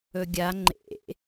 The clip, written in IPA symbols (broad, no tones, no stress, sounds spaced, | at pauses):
ɵ ɡʲ a ŋ͡ǃ ḛ